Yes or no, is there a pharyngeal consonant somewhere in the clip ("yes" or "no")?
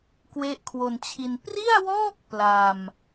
no